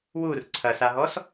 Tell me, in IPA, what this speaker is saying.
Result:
w u r ǀʰ ɐ s a ɦ ɔ s

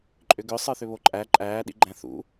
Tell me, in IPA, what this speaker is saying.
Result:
ǃʼ ʏ ɡ ʏ sˤ ə˞ θ ʏ β o ǃʼ æ ǃʼ æː ɗ ḭ ɡ͡ǃ æ̃ θ ṵ

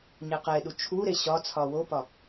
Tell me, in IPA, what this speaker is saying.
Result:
ɲ e q e ɗ u t͡ʃʰ u ɾ e ɕ ɒ t͡sʰ ɒ w o p ɒ

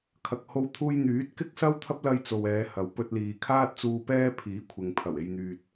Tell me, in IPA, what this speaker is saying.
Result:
kʰ ɐ˧ k̚ h o˥ w t̪ʰ uː˥ j n̪ yː˨˥ t̚ k ɪ˥ k̚ s ɐ˥ w t̪ʰ ɐ˥ p̚ l ɐ˧ j t͡s o˨ w ɛː˨˧ h ɐ˨ w p ɵ˧ t̚ l iː˨ kʰ aː˥ t̚ t͡s uː˧ p ɛː˥ pʰ iː˨˥ kʷʰ ɪ˨ ŋ pʰ ɐ˨˩ w e˨ j n̪ yː˨ t̚

